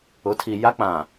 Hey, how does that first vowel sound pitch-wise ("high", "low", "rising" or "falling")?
rising